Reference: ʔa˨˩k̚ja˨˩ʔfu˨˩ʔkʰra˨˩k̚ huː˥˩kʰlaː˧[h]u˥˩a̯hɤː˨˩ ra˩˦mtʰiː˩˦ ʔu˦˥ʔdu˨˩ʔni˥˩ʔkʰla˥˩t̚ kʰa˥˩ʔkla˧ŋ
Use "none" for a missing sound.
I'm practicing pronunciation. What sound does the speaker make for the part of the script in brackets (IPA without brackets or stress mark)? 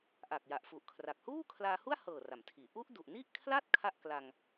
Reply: h